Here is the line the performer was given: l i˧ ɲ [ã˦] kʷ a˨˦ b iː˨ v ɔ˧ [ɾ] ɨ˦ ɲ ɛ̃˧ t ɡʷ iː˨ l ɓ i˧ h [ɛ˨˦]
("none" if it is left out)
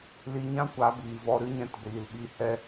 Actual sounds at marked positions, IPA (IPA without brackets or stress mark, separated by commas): ã˦, ɾ, ɛ˧